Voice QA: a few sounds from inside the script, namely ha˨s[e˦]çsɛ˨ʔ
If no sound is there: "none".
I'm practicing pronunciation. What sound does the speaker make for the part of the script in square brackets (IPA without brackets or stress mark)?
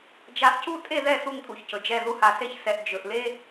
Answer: e˦